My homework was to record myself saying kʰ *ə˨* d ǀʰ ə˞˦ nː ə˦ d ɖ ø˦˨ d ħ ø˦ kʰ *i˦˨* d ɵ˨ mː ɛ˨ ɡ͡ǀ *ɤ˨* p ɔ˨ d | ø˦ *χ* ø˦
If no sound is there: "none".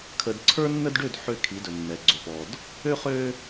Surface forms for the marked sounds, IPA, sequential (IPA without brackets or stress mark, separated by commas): ə˨, i˨˦, ɵ˨, χ